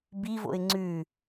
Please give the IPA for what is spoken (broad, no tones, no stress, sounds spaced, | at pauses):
b i v o̰ ɪ̯ ŋ͡ǀ ʉ